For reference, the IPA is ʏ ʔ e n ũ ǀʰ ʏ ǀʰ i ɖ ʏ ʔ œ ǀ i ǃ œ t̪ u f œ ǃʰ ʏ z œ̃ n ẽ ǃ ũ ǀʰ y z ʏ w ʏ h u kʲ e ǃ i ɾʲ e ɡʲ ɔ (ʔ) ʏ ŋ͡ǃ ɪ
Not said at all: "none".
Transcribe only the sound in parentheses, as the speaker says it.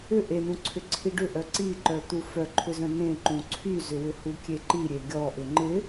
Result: ʔ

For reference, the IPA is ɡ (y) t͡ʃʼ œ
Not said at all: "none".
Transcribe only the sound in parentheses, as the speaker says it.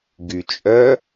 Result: y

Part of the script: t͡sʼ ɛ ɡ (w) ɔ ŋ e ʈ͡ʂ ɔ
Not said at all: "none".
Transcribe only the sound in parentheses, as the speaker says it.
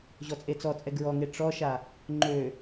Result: ɹ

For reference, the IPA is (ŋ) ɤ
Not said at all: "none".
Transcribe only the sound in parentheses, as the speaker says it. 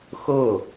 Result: x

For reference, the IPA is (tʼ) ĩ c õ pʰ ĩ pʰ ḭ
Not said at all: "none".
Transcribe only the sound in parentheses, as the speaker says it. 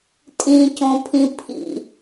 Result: tʼ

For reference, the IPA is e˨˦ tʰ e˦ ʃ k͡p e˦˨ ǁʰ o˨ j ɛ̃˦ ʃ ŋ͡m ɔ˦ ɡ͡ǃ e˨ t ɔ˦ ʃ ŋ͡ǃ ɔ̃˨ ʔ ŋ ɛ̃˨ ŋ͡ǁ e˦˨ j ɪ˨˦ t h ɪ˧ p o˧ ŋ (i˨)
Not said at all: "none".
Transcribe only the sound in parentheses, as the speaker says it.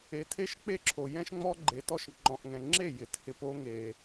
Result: e˨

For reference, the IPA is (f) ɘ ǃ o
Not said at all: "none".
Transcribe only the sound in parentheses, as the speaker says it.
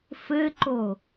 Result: f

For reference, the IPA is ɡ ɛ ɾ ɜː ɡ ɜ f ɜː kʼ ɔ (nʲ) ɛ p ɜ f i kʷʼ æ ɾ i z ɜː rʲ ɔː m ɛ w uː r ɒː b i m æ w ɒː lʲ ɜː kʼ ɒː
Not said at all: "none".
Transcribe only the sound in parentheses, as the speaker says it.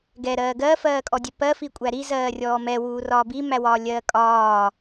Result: dʲ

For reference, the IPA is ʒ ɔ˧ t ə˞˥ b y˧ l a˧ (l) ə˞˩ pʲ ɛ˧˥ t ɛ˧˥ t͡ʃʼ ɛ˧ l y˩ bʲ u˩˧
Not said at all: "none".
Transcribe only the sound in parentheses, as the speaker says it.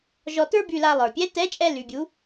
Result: lˠ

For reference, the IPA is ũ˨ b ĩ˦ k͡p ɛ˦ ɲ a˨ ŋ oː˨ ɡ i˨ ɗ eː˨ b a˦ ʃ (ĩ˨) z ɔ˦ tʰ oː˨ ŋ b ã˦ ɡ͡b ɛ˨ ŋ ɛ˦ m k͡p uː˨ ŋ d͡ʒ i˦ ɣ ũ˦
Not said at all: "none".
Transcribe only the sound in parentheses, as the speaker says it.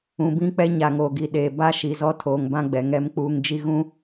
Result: i˨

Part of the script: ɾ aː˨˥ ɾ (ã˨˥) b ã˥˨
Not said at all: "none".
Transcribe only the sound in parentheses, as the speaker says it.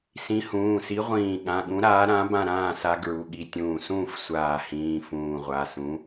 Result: ã˨˥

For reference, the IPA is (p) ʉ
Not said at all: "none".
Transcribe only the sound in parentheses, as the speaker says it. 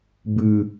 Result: b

